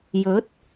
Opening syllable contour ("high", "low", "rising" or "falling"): rising